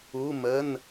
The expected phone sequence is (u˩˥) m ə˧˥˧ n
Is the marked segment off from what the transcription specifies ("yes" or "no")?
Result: yes